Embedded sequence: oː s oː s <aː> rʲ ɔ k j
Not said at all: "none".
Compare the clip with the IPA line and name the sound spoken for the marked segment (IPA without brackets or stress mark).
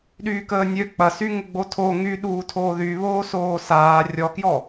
aː